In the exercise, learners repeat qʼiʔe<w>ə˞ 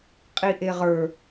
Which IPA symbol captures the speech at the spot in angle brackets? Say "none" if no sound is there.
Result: ʁ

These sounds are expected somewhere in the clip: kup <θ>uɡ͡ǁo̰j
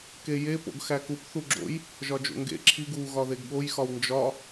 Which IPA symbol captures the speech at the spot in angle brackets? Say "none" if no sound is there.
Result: θ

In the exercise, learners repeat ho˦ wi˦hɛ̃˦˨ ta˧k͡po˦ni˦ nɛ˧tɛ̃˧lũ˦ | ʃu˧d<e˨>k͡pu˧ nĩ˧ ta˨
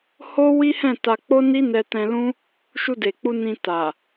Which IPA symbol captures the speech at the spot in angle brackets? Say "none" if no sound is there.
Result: e˨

